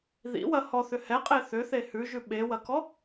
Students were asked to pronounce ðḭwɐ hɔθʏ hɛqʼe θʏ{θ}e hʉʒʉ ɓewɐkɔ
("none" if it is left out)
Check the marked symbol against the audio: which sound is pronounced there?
θ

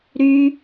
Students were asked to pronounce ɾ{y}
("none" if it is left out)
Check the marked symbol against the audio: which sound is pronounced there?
y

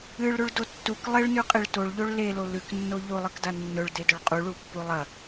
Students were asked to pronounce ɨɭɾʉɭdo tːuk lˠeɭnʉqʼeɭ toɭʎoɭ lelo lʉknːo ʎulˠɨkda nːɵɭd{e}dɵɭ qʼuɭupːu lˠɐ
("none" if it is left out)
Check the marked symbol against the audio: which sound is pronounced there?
e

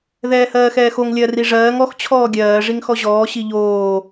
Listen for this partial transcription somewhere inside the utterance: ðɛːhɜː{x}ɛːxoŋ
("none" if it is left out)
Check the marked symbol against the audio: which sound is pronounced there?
x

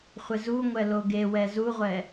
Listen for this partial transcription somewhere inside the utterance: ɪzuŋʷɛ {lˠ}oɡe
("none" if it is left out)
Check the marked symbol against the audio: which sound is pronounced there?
l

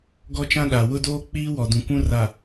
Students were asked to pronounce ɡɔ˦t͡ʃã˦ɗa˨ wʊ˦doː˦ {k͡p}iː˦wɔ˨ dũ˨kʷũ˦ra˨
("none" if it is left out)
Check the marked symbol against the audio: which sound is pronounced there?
k͡p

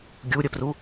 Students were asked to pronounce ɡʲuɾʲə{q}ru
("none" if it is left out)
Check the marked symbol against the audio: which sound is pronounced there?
p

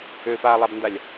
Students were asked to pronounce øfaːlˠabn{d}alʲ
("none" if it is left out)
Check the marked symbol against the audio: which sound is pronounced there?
d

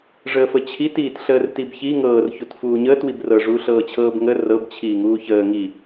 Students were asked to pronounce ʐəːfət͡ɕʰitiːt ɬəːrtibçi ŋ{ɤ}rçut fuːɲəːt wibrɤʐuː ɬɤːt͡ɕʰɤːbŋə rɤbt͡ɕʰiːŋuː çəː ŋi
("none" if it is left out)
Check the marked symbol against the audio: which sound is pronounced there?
ɤː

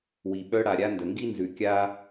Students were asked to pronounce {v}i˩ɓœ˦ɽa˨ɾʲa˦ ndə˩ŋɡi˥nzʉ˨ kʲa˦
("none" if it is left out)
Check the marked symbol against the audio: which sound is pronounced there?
w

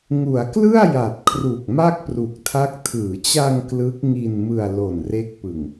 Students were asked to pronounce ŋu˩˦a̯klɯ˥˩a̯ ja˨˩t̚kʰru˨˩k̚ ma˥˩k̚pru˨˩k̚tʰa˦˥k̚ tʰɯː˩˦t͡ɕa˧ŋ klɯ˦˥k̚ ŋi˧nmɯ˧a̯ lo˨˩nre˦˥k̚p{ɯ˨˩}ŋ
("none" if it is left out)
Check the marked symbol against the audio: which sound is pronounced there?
ɯ˨˩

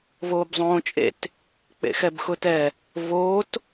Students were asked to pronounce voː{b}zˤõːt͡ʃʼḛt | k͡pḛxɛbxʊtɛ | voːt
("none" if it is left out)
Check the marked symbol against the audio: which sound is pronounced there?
b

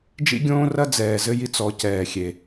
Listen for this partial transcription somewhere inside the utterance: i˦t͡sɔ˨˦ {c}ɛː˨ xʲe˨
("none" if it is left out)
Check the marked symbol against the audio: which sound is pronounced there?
c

